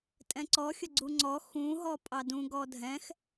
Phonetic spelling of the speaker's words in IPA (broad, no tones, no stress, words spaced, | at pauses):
tʼɛ̃ǀɔxʲə ɡ͡ǀuŋ͡ǀɔ xũɦɔ pʼɑdũ ɡɔdʱɛ̃x